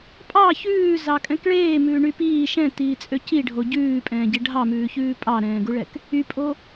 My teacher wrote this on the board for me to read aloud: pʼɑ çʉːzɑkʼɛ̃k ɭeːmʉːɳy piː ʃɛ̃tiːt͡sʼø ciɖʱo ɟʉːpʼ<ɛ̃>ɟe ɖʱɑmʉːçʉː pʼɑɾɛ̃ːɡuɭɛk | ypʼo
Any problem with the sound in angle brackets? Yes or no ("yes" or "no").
yes